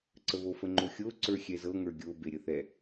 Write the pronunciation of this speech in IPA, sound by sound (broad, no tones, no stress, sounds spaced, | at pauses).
ǀ ə β o f ə ŋ͡ǃ o xʲ o ǀ ə˞ xʲ ɛ z ɤ ŋ ə˞ ɡʲ o b e ɾʲ ə θ ɛ